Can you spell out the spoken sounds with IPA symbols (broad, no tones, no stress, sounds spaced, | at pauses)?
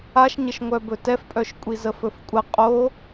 a ʃ ɲ ə ʃ ŋʷ œ b ɵ t ɛ f pʼ œ ʃ kʷʼ i z ə f ɵ f kʷʼ ə qʼ o